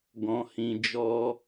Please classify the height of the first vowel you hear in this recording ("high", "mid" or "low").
mid